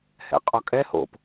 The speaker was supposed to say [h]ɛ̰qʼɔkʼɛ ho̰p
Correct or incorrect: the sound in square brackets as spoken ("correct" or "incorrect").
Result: correct